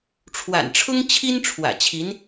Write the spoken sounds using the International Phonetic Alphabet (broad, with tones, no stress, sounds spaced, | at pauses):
ʈ͡ʂʰ w a̰˨˩ n ʈ͡ʂʰ ʊ˥ ŋ t͡ɕʰ i˥ n ʈ͡ʂʰ w ä̰˨˩ t͡ɕʰ i˧˥ n